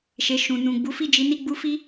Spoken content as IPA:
ʃ e˨ ʃ ũ˨ n ũ˨ ɡ͡b u˨˦ f i˦˨ d͡ʒ i˨˦ n i˦˨ ɡ͡b u˧ f i˦

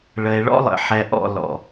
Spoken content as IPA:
ɭ ə˨ e̯ ɭ ɔ̰˦ lˠ ə̰˨ ħ ɛ˨ ʔ ɔ̰˨ l ɔ̰˨

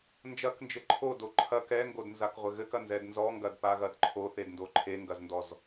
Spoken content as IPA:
n d͡ʒ ɐ k n d͡ʒ ɘ ǃʰ o d o ǃʰ ɐ k ɛ ŋ ɡ o d n z a k ʁʷ ɘ ɣ ɘ k ɐ n z ɛ d n z ɔ ŋ ɡ ɐ d p a ɣ ɐ d ǃʰ o θ e d n d o ǃʰ e ŋ ɡ ɐ z n d ɔ z

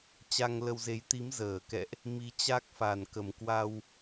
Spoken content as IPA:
t͡ɕ a˧ ŋ l ə˧ w z e˨˦ j t̪ i˨˦ m z əː˧˩ k ɛ̰˧˨ ʔ | m i˨˦ t͡ɕ a˦˥ k̚ f a˨˩ n k ə˨˩ m k w a˧ w

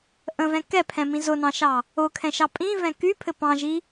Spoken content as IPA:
ʔ ə̃ v ɛ̃ k ɛ pʰ ɛ̃ m ĩ z ʊ n ɑ̃ ʃ ɑ | ʊ kʰ ɛ̃ ʃ ɑ pʼ ĩ v ɛ̃ k y pʰ ɘ p ɑ̃ ʒ i

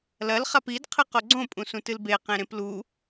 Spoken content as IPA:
l ɐ l χ a p i d qʰ ɨ q o ɡ͡ǀ õ pʼ ũ s ũ t ɨ l b e q ẽ ɾ ẽ p l u

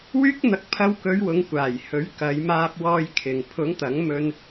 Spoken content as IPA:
w yː˥ k̚ n̪ ɐ˧ k̚ pʰ ɐ˧ w k ɵ˨˧ ɥ w ʊ˨˧ ŋ kʷ aː˨˩ j h ɵ˨˥ ɥ k ɐ˨˧ j m aː˧ p̚ w ɔː˧ j kʰ ɪ˨ ŋ pʰ ʊ˨˥ ŋ t̪ ɐ˨˥ ŋ m ɵ˧ n

